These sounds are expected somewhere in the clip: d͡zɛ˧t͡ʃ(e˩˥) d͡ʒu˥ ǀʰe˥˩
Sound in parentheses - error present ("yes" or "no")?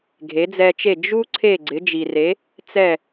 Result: yes